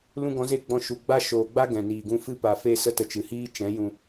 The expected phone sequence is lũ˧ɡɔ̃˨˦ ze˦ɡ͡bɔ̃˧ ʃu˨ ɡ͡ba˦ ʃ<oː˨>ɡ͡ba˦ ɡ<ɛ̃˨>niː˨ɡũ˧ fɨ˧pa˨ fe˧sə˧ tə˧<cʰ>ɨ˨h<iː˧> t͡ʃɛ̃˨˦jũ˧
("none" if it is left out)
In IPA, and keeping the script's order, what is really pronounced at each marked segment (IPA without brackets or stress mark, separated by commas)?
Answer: oː˨, ɛ̃˨, t͡ʃ, iː˦